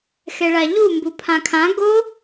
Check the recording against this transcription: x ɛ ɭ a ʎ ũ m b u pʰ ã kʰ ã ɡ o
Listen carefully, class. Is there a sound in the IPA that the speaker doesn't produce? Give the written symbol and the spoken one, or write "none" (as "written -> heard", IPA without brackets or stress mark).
ũ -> u